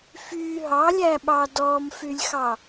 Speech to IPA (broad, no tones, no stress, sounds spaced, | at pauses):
f y ɦ ɑ lʲ æ ɓ ɑ d ɔ m f y lʲ x ɑ